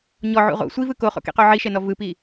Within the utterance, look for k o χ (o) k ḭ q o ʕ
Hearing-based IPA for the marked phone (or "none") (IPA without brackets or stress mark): o̰